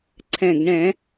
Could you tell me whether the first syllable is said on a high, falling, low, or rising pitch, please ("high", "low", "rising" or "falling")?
low